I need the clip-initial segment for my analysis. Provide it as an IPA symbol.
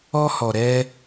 ɔ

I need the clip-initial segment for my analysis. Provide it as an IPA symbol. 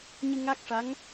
ɲ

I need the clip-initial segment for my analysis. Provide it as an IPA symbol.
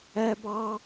æ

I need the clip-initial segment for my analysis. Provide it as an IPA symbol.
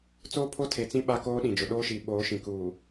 t͡s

